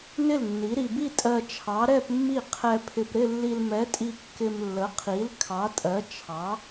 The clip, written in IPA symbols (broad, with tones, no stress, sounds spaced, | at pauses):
n ɪ˥˩ l nː i˨˥ ɾ i˧ b i˥˧ tʼ ɜ˧ t͡ʃʰ ɑ˨˥ ɾ ɛ˥˧ p mː i˥˩ qʰ ɛ˧ pʰ ɪ˧ p ɾ ɪ˥˧ lː i˧ l m ɛ˨˥ tʼ i˧ kː ɪ˧ m lː ə˨˥ qʰ i˨˥ l kʰ ɑ˨˥ tʼ ɜ˨˥ t͡ʃʰ ɑ˨˥